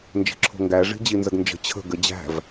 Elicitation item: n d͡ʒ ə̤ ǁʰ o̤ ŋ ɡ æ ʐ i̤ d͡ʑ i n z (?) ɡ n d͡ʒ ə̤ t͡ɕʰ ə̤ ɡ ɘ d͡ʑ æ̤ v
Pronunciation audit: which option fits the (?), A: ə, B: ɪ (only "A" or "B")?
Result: A